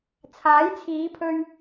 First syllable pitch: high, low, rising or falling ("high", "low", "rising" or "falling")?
rising